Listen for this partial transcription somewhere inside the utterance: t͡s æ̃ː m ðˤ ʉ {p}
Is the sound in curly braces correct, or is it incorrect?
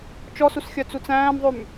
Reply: incorrect